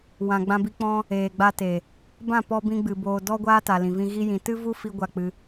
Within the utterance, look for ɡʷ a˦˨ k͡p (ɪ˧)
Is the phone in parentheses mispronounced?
yes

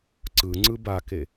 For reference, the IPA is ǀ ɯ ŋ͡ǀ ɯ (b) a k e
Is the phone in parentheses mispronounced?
no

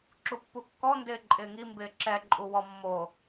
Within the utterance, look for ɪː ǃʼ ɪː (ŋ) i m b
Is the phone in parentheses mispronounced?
no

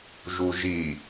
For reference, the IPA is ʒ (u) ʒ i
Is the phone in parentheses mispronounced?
no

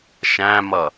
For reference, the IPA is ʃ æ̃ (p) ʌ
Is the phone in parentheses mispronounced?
yes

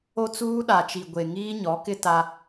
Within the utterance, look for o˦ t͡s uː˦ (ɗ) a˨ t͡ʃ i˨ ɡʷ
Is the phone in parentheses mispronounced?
no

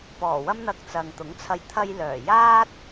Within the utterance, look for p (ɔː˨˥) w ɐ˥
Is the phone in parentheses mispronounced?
yes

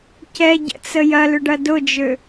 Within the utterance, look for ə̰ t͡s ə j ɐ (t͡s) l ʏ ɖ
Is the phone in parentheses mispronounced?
yes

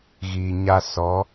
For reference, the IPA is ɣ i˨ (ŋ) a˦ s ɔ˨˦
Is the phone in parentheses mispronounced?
yes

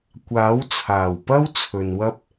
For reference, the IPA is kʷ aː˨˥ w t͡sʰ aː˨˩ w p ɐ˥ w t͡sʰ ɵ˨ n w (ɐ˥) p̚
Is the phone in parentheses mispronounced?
no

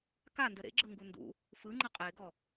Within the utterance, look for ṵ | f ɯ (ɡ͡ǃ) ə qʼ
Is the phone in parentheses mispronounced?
yes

